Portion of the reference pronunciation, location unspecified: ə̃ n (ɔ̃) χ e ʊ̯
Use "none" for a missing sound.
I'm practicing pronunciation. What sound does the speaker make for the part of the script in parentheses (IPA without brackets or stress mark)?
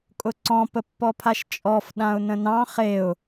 ɑ̃